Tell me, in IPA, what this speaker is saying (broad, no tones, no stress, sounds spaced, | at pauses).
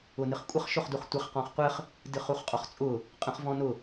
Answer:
ʊ n ɨ χ kʷʼ ə χ ʃ ʊ χ d u χ tʷ ɪ χ q ɔ̃ χ qʷ ɘ χ | d ɨ χ u χ qʼ ɔ χ t͡sʼ ʊ | qʼ ə̃ χ v ɔ̃ n ʊ